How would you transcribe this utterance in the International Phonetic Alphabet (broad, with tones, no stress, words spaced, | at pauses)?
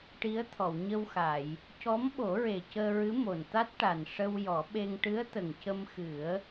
ʈi˧˥ə̯t̪ʰɔ˨˩˨wɲə˧wxa˨˩˨j | cɔ˧˥mɓo˨˩˦ɹe˨˩ cəː˧ɹɨ˧˥mo˨˩nt̪a˦˥t̚ ʈa˨˩n ʂə˧wjɔ˨˩˦ɓe˧ŋ ʈɨ˧˥ə̯t̪ə˨˩ŋ cə˧mxɨ˨˩˦ə̯